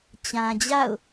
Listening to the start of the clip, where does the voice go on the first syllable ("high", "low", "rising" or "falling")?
low